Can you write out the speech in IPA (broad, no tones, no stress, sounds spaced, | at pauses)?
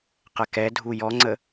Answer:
q ɛ k ɛ dʱ u j ɔ ŋ͡ǀ ə